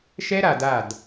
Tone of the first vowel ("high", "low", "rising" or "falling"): high